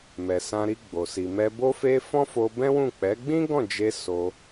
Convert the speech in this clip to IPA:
mɛ˨sã˧ɾi˧ɡ͡bo˨ si˨mɛ˧bo˦fe˦ fɔ̃˦fo˧ bɛ̃˦wũ˦˨ k͡pɛ˨˦ɡ͡bĩ˦ɡɔ̃˦˨d͡ʒe˧ so˧

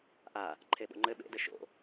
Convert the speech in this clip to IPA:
ʔa | ǃʰeɓo̰ŋ͡ǃɘ ɓḛdɘ ʃo̰

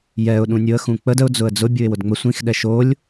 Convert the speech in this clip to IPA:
jɛʊ̯ ɗũnʲʊə̯ xũk͡pəd əʊ̯ d͡zʊə̯d͡zʊ bʲuɪ̯wʊdŋ͡mə sʷĩx ɗɛʃolʲ

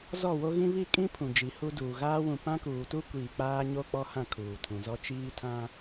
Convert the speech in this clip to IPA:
zɔ˦˨wo˦ɣĩ˦ βi˦˨kʼĩ˦ pʰũ˨d͡ʒi˨˦hu˦ duː˨ɣaː˦ wũ˨pã˦kuː˨tu˦ kʷiː˨k͡paː˦ɲo˦ k͡pɔ˦hã˦˨ kʰuː˨tʰũ˨zɔ˦ t͡ʃiː˦tʰã˦

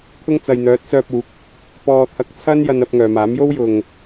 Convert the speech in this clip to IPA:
t̪ʰʊ˥ŋt͡sɐ˨jn̪œː˨˥t̚ sœː˧p̚uː˨˥k̚ | pɔː˨t̪ʰɐ˨˥k̚t͡sʰɐ˥n jɐ˧nɐ˧p̚ ŋœː˨maː˨˥m jo˥wjʊ˨ŋ

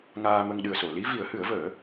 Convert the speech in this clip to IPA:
ŋaː˧mə˧ŋ ɗɨ˨˩ə̯so˨˩˨li˧˥ vi˨˩˦ə̯hɨ˨˩˦ə̯vəː˨˩˦

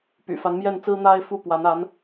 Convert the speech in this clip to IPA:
py̰˨˩fa˧˥nmjɛ˥˩nt͡sɹ̩˥ n̪a˥ɪ̯ fu˥˩pwa˧˥n a˧˥n

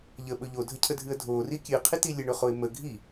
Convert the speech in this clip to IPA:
ʎəɓɵ ʎodʱəcʰədʱɨə̯ dʱori kʲɨqʰiti lʲəɳɵχoɪ̯ mə ɡʱi

